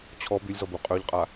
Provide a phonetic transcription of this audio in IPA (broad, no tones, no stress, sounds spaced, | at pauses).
t͡ɕʰ ɔ b y lʲ z ɔ b u qʼ ø ʎ qʼ a